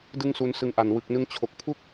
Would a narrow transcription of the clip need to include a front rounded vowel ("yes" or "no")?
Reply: no